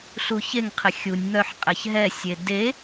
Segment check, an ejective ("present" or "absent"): present